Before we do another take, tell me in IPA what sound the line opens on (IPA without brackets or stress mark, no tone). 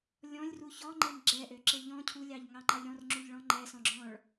lʲ